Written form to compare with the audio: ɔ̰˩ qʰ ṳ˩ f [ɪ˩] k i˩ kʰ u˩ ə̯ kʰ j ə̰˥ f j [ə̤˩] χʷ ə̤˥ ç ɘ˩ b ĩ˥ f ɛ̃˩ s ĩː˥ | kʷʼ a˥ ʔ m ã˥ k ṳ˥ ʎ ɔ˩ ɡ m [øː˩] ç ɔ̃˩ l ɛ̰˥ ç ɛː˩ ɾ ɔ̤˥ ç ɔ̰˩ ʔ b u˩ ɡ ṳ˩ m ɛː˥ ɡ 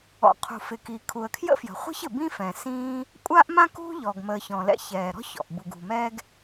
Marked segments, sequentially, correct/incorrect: correct, correct, incorrect: əː˩

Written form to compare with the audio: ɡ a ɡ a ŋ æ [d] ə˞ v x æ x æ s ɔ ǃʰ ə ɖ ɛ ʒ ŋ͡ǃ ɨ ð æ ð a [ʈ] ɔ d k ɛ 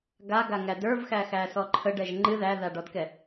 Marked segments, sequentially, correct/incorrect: correct, incorrect: ɖ

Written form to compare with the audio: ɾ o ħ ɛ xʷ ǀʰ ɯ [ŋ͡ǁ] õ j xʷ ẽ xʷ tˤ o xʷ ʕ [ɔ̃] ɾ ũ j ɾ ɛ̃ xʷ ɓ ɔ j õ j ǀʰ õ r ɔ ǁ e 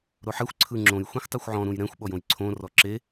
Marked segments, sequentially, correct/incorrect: correct, correct

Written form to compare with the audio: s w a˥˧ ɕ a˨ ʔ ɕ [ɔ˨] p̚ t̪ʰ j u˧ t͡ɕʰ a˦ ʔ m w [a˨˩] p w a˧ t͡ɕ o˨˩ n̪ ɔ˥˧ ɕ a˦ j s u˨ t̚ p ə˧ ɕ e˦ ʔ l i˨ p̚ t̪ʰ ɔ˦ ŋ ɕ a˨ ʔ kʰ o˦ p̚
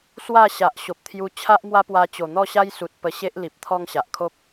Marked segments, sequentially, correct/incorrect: incorrect: o˨, incorrect: a˦

